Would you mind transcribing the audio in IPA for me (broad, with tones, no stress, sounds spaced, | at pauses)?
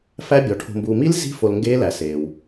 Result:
f æ˦˥ bʲ ɒ˨ ʈʰ o̤˨ m b uː˨ m i˦˥ l z i̤˦˥ f o˨ l ŋ ɡ eː˦˥ l æ˨ s eː˨ w